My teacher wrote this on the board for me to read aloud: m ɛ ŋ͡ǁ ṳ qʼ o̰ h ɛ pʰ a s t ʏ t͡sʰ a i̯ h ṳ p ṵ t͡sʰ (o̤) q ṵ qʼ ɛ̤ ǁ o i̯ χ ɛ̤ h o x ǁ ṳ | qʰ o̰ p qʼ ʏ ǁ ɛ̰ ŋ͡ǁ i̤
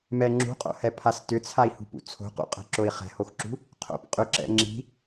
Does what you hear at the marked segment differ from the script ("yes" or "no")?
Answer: no